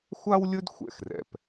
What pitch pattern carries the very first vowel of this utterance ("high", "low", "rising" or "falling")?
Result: high